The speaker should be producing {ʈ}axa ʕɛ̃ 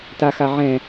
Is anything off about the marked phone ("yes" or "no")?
yes